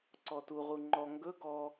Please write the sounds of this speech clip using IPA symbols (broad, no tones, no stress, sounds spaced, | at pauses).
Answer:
ǀ ɔ t u ʁ u ŋ͡ǃ ɔ ŋ ɡ ɵ ɡ ɔ